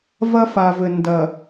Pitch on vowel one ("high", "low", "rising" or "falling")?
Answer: high